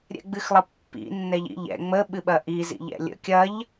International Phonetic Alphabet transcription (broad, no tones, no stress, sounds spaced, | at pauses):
ɾʲ ɛ̰ ɡ͡b ɨ x lˠ ə pː ḭ nː ɛ ʎ ḭ ʎ ɛ̰ ŋ͡m ə ɓ ɨ ɓ ɐ ʔ i z ḭ ʎ ɛ̰ lʲ ə̰ kʲ ɐ ʎ